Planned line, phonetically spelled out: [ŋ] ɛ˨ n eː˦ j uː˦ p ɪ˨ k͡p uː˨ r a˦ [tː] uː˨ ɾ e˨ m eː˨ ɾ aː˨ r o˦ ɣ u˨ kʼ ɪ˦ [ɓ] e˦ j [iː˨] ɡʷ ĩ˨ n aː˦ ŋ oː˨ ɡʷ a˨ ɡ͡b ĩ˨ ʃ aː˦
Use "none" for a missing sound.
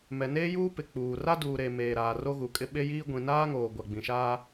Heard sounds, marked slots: m, d, ɓ, iː˦

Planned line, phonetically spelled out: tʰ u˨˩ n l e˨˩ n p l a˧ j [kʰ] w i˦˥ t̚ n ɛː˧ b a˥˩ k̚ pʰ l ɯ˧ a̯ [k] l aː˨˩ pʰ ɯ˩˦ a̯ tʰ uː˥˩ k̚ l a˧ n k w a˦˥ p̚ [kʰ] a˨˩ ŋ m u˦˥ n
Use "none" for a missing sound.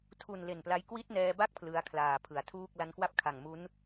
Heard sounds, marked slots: k, kʰ, kʰ

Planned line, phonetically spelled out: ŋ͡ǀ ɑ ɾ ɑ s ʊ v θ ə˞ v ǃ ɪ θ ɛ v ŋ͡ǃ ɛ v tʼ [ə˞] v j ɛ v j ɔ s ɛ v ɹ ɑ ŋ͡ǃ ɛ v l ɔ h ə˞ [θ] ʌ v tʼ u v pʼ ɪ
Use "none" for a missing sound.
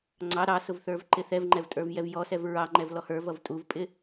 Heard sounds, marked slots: ə˞, v

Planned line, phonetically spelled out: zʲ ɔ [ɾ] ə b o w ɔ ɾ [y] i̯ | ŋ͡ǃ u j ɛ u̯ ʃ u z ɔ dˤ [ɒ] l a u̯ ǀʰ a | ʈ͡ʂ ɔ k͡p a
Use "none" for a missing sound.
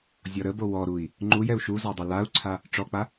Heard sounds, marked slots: ɾ, u, ʌ

